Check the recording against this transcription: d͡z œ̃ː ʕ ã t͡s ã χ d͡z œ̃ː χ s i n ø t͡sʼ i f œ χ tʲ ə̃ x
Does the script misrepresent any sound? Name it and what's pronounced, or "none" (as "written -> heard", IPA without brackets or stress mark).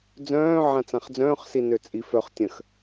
none